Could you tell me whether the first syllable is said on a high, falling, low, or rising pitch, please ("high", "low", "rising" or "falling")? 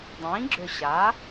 rising